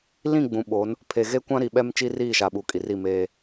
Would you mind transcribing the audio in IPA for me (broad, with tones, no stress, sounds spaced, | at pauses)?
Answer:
l ĩ˦˨ ɡ͡b ũ˨ ɓ o˨˦ n | pʰ e˨ ɣ e˦ kʷ ã˦ ɾ i˨ ɓ ɛ˦ m t͡ʃ i˦ r iː˦˨ ʃ a˨ ɓ u˨ kʼ i˨ r i˦˨ m eː˦